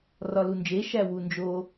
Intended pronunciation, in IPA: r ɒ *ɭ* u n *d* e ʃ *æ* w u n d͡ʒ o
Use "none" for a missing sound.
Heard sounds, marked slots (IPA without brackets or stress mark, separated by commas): l, d͡ʒ, æ